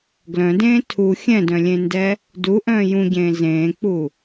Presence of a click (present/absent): absent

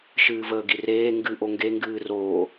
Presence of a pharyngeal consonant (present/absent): absent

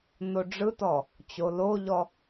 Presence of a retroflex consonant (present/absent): present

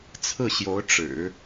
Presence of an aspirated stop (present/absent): present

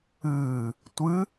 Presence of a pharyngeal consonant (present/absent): absent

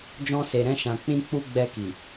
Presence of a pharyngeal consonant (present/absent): absent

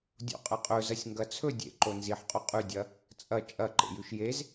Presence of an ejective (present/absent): present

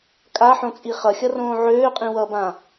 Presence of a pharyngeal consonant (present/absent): present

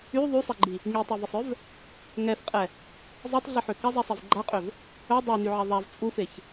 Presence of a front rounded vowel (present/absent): present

